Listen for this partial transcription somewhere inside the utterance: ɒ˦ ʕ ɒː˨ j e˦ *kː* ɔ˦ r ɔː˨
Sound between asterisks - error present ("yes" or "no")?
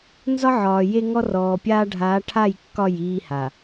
yes